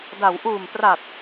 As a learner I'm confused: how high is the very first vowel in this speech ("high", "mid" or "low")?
low